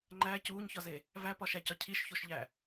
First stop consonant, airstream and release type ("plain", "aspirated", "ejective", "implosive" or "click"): click